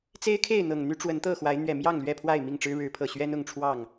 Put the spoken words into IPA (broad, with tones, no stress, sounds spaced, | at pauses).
t͡s e˦ ɪ̯ kʰ e˥˨ ɪ̯ n̪ ɤ˨˩ ŋ n̪ y˦ ʈ͡ʂ w ə˨˦ n t̪ ɤ˥˨ x w a˨˦ ɪ̯ n̪ ɥ ɛ˨˩ m j ɑ˥˨ ŋ l ɥ ɛ˥˨ pʰ w a˥˨ ɪ̯ m i˥˨ ŋ ʈ͡ʂ ɻ̩˦ ɻ ɻ̩˨˦ pʰ ɤ˨˩ ɕ ɥ ɛ˦ n ʊ˥˨ ŋ ʈ͡ʂʰ w ɑ˥˨ ŋ